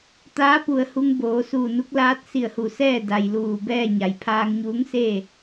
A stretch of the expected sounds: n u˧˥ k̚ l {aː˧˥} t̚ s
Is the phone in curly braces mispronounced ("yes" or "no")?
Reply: no